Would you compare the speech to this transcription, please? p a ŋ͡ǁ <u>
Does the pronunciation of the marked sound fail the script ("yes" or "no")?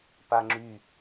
yes